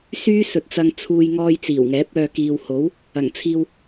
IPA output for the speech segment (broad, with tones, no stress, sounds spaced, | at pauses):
s yː˥ s ɵ˨˥ t̚ t͡s ɐ˧ ŋ t͡sʰ uː˧ j ŋ ɔː˧ j t͡s iː˨˩ w ŋ ɛː˨˥ p̚ œː˧ k iː˨ w h o˨˥ w | ɐ˨˩ ŋ t͡sʰ iː˧ w